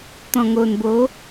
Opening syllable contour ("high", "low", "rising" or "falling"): low